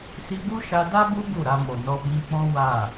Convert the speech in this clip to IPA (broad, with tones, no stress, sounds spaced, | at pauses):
s i˧ b u˦ ʃ a˧ d a˦ b u˦ ɡ u˦˨ ɾ a˧ m o˨ n ɔ˧ b ĩ˧ k͡p ɔ̃˦ w a˦˨